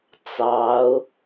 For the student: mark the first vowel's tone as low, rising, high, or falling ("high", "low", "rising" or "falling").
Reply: rising